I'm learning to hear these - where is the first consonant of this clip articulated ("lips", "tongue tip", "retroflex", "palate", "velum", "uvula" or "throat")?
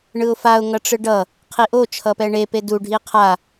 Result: retroflex